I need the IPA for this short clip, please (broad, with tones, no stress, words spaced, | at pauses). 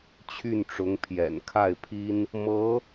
t͡ɕʰy˥˩nʈ͡ʂʊ˧˥ŋ pʰjɛ̰˨˩n kʰa˥˩ɪ̯pʰi˥n | mɤ˧˥